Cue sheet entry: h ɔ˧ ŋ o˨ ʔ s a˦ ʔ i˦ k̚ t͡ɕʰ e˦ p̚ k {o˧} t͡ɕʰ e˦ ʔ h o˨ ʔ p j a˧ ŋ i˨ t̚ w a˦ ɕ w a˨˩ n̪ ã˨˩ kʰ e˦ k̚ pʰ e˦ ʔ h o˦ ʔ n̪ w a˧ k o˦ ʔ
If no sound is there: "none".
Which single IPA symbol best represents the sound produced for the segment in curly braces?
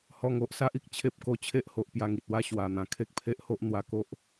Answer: o˧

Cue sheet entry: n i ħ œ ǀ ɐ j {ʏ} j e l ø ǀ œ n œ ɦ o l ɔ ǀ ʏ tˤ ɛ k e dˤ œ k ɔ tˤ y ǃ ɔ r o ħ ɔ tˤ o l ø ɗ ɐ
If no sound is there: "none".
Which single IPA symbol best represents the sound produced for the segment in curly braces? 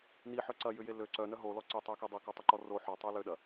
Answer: ʏ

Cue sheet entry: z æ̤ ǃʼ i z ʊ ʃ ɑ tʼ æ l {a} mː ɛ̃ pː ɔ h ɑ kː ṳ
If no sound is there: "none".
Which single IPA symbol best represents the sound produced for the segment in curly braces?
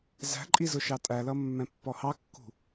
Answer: ʌ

